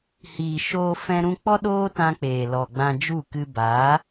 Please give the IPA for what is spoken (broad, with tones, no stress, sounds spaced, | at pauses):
h iː˨ ʃ oː˧ f ɛ̃˦ ɾ ũ˦ k͡p ɔ˦ ɗ oː˦ t ã˧ k͡p eː˨ l ɔ˨ ɡ͡b ã˧ d͡ʒ u˦˨ k ɨ˧ b a˨˦